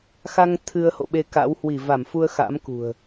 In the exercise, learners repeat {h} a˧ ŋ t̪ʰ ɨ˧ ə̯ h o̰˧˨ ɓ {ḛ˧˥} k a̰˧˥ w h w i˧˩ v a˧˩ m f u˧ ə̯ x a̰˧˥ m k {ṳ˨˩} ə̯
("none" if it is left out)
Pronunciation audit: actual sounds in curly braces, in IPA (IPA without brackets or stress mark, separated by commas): x, e˧, ṳ˨˩